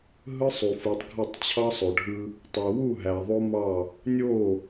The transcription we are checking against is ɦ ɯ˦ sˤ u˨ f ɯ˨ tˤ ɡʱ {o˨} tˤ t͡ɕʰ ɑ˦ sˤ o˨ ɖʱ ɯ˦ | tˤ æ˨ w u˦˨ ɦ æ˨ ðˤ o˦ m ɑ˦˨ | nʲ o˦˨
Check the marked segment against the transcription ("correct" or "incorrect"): incorrect